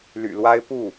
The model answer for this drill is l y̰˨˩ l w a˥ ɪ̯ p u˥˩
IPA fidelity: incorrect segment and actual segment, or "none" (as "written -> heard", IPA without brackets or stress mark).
none